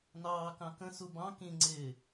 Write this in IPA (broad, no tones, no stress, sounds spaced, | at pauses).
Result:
n ɑː k ɑ̃ k ə̃ s u b ɑ̃ k ĩ ŋ͡ǀ ɪː